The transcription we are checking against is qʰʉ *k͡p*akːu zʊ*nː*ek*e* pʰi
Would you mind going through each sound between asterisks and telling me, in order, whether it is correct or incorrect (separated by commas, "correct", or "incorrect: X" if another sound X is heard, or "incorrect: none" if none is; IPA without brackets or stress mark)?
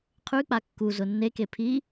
correct, correct, correct